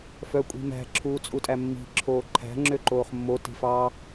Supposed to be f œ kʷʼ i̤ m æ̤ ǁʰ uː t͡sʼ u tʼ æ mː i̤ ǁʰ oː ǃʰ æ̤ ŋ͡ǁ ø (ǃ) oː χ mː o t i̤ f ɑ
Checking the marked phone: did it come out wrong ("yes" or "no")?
no